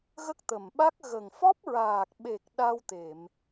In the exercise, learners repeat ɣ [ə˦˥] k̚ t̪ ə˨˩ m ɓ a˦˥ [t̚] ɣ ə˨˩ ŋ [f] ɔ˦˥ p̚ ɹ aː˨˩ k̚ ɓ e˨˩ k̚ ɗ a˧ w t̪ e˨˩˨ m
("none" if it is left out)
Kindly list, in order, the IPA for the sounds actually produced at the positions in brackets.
ə˦˥, k̚, f

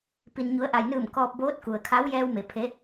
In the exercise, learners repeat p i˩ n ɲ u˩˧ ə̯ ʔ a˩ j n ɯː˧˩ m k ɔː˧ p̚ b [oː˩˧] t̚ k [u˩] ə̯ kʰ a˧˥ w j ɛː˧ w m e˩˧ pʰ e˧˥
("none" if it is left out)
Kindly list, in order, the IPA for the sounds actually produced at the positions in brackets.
oː˧˥, u˩

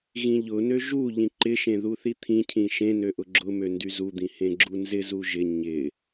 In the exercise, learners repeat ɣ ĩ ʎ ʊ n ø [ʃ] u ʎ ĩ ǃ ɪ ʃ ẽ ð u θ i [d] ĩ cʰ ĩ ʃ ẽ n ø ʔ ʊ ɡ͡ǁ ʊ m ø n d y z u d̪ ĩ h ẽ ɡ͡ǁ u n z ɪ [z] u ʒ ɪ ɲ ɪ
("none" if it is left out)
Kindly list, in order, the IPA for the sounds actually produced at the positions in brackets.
ʒ, t̪ʰ, z

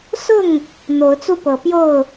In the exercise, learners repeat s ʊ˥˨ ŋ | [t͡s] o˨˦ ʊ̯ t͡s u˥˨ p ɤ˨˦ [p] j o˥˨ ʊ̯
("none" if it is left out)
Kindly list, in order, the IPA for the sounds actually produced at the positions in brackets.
n̪, p

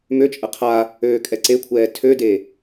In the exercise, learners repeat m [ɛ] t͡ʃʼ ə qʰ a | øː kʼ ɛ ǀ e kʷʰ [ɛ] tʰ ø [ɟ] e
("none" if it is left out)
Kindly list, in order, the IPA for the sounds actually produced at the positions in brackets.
ø, ɛː, d

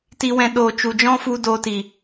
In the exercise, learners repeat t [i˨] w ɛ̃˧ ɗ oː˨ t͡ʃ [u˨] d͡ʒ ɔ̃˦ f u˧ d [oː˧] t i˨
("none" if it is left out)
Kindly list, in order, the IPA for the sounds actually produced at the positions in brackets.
i˧, u˨, oː˧

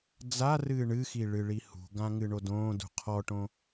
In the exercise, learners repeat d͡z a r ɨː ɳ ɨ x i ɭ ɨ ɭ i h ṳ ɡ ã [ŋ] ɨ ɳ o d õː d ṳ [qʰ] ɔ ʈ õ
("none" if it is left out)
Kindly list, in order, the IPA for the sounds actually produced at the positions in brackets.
ŋ, qʰ

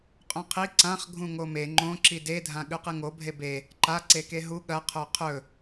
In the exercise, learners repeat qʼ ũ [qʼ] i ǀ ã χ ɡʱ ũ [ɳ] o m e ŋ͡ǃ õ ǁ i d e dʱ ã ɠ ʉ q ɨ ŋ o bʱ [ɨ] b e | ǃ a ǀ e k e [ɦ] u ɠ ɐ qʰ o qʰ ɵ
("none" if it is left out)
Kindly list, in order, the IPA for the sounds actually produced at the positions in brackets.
qʰ, ŋ, e, ɦ

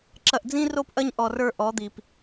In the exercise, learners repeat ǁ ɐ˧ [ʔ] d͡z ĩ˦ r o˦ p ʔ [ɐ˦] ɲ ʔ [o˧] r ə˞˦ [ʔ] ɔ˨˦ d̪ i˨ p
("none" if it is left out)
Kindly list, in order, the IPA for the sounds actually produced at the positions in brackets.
ʔ, ɐ˦, ɔ˧, ʔ

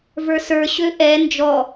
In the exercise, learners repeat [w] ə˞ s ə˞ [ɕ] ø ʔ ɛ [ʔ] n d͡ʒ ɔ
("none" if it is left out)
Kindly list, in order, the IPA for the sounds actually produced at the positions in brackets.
v, ɕ, none

